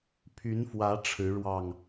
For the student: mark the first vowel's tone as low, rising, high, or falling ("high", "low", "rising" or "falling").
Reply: rising